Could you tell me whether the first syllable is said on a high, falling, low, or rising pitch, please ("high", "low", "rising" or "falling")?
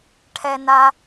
low